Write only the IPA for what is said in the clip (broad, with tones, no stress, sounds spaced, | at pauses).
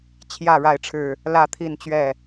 t͡ɕʰ j ä˥˨ ɻ a˥˨ ɪ̯ ʈ͡ʂʰ ɻ̩˥˨ | l ä˥˨ t̪ʰ i˥˨ n t͡ɕ ɥ ɛ˥˨